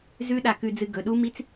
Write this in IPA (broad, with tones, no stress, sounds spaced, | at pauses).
z ʉ˦˥ ɗ a˧ k ʉ˧ d͡z ɨ˧ ɡ ɵ˩˧˩ ɗ u˦˥ m i˦˥ t͡s